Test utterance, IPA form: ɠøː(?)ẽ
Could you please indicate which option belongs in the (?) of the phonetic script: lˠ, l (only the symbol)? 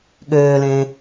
l